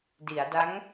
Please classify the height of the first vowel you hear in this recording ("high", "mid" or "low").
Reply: high